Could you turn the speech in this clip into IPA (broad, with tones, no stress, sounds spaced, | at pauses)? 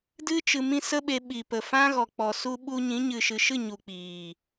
d ɨ˦ t͡ʃ ɨ˧ m ĩ˦ s ə˦ ɓ e˧ ɓ i˨ p ə˨ f ã˦ ɣ ɔ˨ k͡p ɔ˨ s u˧ ɓ u˧ ɲ ĩ˨˦ ɲ ɨ˨ ʃ ɨ˨ ʃ ɨ˦˨ ɲ u˨ k͡p iː˨